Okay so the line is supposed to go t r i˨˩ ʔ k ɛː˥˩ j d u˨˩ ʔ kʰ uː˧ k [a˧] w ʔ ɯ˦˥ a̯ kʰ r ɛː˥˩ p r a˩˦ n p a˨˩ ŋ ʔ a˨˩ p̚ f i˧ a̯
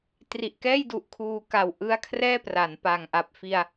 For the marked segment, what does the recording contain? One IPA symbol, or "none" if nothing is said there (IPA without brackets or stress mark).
a˨˩